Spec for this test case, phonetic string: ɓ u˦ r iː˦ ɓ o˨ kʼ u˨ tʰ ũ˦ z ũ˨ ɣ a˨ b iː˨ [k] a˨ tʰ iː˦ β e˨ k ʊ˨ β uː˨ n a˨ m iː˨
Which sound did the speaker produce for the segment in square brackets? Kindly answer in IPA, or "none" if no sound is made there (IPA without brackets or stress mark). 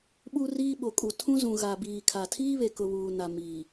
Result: kʰ